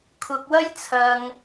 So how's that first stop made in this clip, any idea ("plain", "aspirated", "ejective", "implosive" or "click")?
aspirated